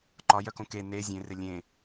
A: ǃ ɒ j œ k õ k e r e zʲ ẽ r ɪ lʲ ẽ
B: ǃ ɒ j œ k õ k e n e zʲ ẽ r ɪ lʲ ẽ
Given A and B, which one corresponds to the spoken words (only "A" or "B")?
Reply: B